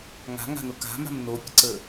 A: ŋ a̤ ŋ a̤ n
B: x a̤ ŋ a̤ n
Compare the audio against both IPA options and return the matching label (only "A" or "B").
A